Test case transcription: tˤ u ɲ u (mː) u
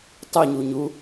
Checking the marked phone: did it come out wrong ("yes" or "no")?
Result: yes